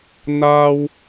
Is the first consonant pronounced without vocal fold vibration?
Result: no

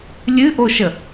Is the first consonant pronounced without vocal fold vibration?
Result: no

